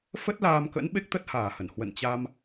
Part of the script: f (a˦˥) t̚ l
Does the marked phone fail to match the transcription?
yes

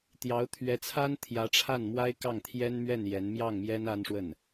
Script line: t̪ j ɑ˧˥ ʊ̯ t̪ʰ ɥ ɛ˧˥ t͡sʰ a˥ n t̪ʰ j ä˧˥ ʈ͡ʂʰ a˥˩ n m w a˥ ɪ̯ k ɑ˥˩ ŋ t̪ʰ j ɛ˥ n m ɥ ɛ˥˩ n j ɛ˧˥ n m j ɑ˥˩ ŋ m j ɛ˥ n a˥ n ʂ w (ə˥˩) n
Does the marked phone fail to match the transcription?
no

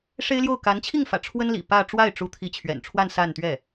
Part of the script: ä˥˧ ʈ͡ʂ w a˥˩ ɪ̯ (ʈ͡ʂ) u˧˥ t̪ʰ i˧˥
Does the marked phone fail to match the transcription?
no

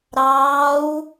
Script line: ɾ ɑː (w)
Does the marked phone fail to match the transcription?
no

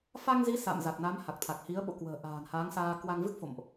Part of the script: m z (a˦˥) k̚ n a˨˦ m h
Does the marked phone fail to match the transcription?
yes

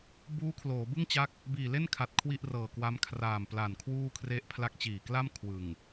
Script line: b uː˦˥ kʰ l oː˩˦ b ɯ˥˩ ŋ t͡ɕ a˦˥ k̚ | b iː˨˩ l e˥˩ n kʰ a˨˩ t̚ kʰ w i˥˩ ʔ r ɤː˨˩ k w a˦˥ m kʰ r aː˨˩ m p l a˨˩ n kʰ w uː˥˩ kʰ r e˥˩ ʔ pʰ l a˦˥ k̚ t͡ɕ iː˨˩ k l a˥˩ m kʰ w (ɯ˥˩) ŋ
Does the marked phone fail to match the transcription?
yes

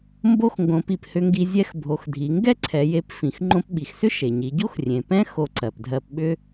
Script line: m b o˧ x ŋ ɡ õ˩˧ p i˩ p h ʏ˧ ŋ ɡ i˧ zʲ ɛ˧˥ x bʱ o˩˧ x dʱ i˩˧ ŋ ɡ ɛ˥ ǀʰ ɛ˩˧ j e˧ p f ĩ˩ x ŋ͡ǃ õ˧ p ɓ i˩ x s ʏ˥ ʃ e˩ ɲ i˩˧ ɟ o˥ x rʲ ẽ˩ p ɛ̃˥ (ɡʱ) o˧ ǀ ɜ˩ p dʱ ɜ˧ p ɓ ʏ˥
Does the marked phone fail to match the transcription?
yes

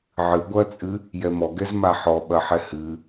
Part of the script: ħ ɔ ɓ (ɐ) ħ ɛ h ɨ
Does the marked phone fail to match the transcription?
no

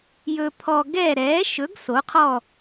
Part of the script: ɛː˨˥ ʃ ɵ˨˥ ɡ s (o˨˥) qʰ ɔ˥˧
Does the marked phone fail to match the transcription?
no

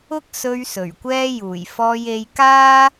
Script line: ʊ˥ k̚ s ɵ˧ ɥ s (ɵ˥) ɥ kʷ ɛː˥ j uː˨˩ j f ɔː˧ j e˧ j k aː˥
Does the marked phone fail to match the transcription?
yes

